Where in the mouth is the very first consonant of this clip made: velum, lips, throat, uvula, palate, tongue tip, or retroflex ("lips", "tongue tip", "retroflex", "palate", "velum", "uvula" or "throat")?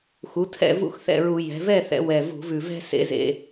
velum